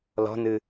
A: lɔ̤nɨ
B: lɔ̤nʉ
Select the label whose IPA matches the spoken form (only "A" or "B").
A